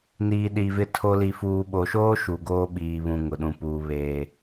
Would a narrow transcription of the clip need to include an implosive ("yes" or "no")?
yes